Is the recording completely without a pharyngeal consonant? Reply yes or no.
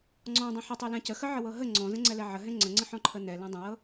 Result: no